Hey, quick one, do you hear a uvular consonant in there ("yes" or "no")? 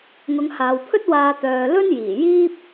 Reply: no